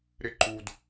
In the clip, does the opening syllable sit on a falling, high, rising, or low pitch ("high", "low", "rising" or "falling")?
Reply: high